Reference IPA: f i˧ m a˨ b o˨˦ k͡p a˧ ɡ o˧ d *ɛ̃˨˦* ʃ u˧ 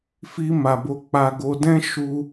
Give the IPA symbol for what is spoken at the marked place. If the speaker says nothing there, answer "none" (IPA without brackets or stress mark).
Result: ɛ̃˦